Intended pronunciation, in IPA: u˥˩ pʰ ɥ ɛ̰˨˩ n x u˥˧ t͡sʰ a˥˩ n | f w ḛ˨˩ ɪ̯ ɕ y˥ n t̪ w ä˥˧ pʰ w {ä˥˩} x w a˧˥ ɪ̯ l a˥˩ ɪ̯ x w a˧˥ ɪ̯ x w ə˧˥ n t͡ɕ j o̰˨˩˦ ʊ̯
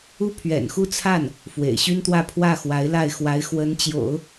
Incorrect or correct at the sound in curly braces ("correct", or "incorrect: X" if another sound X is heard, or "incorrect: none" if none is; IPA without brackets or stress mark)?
correct